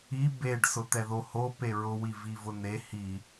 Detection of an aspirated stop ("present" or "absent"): absent